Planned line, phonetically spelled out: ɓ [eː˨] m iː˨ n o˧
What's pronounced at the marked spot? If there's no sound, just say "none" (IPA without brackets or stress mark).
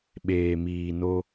eː˨